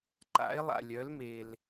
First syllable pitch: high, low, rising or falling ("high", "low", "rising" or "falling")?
rising